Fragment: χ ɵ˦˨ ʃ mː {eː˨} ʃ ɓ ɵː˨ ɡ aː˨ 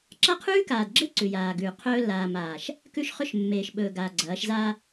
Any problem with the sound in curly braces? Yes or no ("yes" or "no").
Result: no